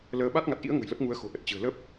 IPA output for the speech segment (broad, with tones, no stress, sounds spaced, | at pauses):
l əː˧ ɓ a˦˥ t̚ ŋ a˨˩ t̚ ʔ ḭ˧˥ ə̯ ŋ ə̤˨˩ j l ə˦˥ p̚ ŋ u˨˦ ə̯ x o̤˨˩ ʔ ə˨˩ t̚ t͡ɕ ɨ̤˨˩ ə̯ l əː˦˥ p̚